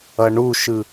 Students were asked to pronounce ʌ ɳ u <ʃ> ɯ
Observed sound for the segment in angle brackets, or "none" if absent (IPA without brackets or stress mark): ʃ